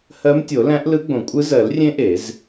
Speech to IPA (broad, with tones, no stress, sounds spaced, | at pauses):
h ɜ˧˥ m tʲ o˨˩˦ l æ̃˧˥ ʔ l ɯ˧˥ ɡ͡b õ˨˩˦ kʷʼ ɯ˧˥ z ɜ˨˩˦ l rʲ ẽ˧˥ ʔ e˨˩˦ z